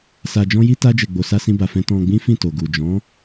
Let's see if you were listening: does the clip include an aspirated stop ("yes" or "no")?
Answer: no